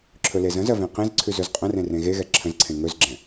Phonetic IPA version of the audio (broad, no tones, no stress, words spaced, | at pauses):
ǁʰɵlezə̃zɜ vẽqẽzǀʰʉz ɵzqʼə̃rẽ rẽɣeɣɛ ǁʰə̃zǀʰẽ ŋɵzɡ͡ǁɛ̃